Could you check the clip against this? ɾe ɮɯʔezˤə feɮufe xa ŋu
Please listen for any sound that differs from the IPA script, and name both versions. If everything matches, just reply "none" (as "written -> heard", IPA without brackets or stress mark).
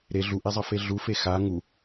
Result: ɯ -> u